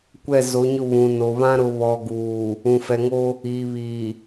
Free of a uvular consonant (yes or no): yes